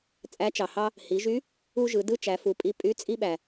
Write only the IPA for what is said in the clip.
t͡sʼ æ˧˥ t͡ʃ ɑ˩ h ɑ˥ | h i˩˧ ʒ y˧˥ | u˥ ʒ ɯ˩˧ d ɯ˥ t͡ʃ æ˩˧ f u˩˧ pʼ i˧ pʼ y˧˥ t͡sʼ i˥ ɓ æ˩

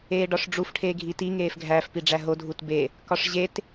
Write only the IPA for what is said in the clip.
eː ɖ ɒ ʂ ɖ͡ʐ u f ʈʰ eː ɡʱ i t i ŋ eː f ɡʱ æ f p i ɖ͡ʐ æ ɦ o dʱ u t b e | k ɒ ʂ ʑ e t

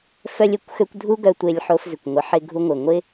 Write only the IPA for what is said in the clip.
f œ˧ lʲ ɪ˨ kʷ x ø˧ kʷ dʱ u˦ ɡ œ˧ tʷ e˧ lʲ ħ o˧ f z ɪ˨ kʷ ŋʷ ə˨˦ ħ ɪ˧ ɡʱ u˧ ŋʷ ɪ˨ ŋʷ ɪ˦

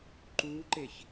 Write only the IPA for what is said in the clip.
ǃ uː ǃ e ç

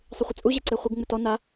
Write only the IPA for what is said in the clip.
sˤ ɪ χʷ ɪ t͡sʼ u ʑ e ǀ e χʷ ɪ ɡ ŋ͡m ɪ t ɔ n a

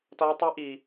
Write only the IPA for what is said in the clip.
t ɒː˦ tˤ i˦ ʔ iː˦

